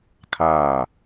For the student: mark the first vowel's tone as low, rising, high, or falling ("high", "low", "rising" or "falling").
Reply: falling